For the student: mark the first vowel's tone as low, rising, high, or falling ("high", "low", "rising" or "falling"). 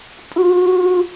high